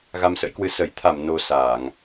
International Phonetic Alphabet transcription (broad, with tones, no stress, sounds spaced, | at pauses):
ɣ a˧ m s ə̰˧˥ j k w ɨ˧ s ə˧˩ j t̪ʰ a˧˩ m n o˧ s aː˧˩˨ ŋ